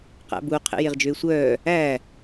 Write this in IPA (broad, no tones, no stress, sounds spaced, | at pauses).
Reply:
q æ̰ b u qʰ ḛ j e ʁ d͡ʒ ø ɪ̯ sʷ œː | æ